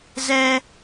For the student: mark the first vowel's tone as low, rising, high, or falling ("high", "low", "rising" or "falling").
high